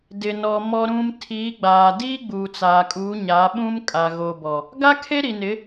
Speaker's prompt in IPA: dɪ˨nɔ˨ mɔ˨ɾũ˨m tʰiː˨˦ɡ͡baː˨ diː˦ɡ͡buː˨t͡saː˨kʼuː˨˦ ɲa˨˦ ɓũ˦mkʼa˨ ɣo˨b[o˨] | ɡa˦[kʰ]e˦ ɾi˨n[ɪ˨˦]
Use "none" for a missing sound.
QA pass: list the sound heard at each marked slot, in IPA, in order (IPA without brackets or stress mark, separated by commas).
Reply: ɔ˨, kʰ, ɪ˨˦